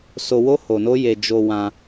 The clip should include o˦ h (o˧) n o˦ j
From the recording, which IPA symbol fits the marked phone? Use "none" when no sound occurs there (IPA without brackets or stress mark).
o˧